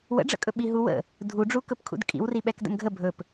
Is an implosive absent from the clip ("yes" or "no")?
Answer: no